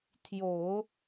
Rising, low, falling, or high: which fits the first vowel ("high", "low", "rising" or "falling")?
low